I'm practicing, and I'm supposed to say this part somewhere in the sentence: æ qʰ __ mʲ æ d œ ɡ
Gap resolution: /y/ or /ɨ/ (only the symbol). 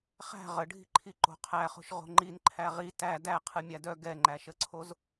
ɨ